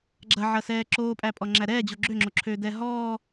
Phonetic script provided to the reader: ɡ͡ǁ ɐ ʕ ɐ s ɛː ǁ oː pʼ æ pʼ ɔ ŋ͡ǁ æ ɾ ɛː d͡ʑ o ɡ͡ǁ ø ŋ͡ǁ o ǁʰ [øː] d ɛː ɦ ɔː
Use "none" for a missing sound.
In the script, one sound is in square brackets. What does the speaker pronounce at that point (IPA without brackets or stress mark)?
øː